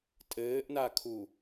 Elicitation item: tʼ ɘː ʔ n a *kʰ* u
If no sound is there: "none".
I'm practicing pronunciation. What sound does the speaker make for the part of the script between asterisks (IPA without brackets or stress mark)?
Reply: kʰ